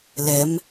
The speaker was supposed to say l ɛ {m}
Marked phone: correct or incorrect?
correct